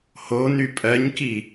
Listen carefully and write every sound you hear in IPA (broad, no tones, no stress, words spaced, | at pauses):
hony pʼɜɲki